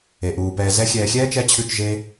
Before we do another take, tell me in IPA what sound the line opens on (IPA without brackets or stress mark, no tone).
e